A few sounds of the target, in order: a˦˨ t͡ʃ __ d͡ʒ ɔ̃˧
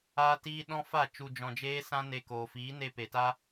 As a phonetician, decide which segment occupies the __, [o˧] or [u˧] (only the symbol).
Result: u˧